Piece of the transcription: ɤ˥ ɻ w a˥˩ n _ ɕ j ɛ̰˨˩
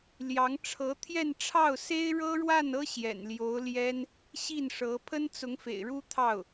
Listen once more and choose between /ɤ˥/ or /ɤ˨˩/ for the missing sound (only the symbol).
ɤ˥